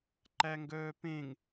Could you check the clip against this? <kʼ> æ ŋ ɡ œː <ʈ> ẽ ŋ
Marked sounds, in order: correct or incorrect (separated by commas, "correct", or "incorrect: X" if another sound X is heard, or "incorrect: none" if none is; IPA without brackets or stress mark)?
incorrect: ǃ, incorrect: p